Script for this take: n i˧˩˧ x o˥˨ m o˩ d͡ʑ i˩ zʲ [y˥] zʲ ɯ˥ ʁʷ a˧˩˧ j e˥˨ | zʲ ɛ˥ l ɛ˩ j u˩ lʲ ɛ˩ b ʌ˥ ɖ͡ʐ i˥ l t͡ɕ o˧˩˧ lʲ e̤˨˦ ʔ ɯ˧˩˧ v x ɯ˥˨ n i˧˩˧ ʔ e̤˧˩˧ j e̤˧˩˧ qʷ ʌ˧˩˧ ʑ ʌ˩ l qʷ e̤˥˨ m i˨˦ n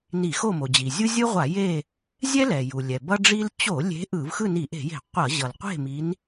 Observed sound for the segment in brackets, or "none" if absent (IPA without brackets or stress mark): u˥